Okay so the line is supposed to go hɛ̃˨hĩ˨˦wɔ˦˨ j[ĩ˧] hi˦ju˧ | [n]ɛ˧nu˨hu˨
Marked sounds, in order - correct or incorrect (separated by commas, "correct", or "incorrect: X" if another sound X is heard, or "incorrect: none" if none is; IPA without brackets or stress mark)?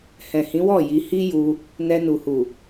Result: incorrect: i˧, correct